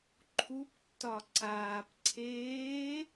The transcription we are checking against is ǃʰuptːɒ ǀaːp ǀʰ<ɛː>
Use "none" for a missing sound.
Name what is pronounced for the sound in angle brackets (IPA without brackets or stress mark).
eː